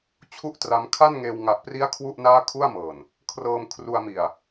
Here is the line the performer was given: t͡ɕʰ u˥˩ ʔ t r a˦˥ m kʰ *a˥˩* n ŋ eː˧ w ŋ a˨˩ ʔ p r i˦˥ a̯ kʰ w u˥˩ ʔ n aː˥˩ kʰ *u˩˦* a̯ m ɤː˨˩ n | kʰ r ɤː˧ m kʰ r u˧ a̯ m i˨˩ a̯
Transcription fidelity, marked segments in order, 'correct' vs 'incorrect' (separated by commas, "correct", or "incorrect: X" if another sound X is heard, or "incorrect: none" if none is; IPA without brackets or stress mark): correct, incorrect: u˥˩